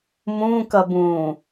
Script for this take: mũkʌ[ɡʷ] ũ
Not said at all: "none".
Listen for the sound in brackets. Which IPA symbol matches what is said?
b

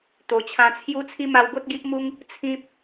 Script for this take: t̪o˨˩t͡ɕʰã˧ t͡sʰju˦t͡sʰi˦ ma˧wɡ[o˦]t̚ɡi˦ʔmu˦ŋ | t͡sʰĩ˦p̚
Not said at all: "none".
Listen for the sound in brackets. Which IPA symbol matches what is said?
o˦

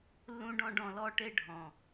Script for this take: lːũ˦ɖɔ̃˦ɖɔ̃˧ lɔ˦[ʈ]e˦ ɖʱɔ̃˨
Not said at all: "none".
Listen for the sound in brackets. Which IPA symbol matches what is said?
ʈ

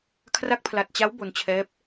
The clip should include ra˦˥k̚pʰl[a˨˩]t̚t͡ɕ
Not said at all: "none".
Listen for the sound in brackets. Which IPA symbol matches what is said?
a˨˩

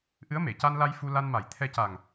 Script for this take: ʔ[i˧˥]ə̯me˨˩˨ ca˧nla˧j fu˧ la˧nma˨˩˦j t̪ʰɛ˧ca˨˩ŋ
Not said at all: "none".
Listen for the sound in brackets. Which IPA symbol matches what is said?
ɨ˧˥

